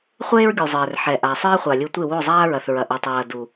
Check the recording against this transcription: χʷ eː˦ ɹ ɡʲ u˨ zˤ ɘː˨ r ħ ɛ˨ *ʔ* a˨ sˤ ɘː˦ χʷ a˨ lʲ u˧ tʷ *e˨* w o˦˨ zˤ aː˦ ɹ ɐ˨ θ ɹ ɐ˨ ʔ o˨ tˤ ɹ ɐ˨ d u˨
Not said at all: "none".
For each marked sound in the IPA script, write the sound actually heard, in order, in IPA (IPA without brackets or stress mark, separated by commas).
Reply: ʔ, e˦˨